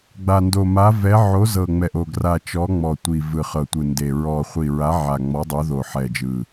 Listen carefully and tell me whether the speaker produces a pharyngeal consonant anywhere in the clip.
yes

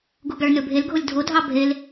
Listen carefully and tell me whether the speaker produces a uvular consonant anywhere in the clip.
no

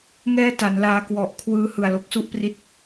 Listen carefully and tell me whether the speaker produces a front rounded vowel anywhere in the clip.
no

